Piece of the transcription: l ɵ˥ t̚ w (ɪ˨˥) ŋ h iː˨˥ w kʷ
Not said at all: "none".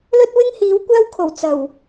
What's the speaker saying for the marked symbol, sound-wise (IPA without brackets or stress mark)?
ɪ˥